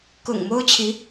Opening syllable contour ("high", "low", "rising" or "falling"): low